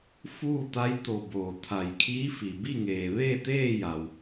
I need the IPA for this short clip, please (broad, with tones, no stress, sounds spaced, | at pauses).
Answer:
f uː˥˨ t̪ a˧˥ j t̪ o˧˩ b oː˧˩ t̪ʰ a˧˩ j kʰ iː˧˥ f i˩ b i˥˨ ŋ eː˩ ʋ eː˥˨ t̪ eː˥˨ j a˩ w